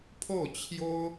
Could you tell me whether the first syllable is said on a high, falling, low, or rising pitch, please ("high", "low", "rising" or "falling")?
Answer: falling